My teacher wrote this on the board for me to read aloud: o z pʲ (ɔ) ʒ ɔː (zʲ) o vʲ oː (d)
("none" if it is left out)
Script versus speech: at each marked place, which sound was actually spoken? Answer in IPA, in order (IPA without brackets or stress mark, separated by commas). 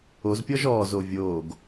ɔ, z, ɡ